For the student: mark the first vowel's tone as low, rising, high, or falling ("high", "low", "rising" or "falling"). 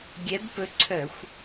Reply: rising